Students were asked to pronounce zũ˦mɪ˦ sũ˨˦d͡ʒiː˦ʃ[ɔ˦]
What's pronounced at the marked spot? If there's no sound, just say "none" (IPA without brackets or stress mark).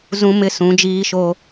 o˦